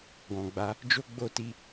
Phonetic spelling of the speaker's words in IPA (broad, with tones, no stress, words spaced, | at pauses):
ɡɔ̃˨ɡ͡ba˧ | d͡ʒo˦ɡ͡bo˦ti˦